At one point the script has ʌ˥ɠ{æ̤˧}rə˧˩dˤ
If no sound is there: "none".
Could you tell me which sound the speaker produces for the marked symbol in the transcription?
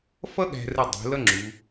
æ̤˧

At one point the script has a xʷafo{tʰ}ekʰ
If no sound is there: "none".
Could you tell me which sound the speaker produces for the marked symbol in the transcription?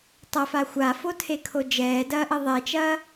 tʰ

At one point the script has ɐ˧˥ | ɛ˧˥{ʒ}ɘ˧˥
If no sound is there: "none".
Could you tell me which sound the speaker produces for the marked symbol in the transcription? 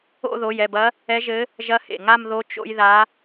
ʒ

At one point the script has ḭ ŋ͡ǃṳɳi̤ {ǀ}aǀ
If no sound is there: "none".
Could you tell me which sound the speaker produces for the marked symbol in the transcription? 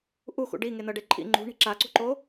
ǁ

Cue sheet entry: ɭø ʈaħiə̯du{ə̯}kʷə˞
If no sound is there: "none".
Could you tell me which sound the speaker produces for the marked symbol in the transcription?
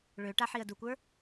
none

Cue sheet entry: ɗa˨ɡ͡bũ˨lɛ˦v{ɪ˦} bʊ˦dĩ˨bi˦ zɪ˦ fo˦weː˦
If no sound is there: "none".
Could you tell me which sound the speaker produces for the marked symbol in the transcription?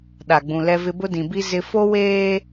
ɪ˦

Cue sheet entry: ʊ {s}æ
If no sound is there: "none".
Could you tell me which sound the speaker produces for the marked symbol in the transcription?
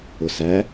s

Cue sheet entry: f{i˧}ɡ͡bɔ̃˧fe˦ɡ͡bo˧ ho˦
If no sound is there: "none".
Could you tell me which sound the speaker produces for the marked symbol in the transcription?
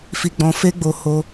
i˧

